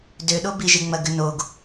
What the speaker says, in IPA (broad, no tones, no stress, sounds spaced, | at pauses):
d ø ɗ o b i ʒ e ŋ͡m ɐ ɡ ʏ n o ɡ